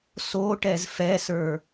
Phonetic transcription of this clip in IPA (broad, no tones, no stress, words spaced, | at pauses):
soʈɛz fɛsə˞